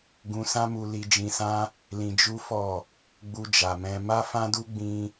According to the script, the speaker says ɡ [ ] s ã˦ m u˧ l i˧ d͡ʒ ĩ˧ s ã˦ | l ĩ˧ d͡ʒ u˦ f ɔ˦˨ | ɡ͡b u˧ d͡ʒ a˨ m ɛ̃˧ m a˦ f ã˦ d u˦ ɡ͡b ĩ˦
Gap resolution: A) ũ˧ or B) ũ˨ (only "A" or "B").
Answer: A